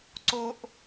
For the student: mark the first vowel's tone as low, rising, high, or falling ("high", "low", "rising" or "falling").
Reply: low